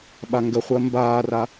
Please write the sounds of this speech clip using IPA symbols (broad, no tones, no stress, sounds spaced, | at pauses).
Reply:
ɓ a ŋ ɡ ə χʷ əː m b aː r a